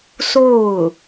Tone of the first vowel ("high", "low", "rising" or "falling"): falling